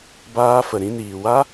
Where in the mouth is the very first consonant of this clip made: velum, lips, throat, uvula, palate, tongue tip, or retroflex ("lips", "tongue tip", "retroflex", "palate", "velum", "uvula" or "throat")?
lips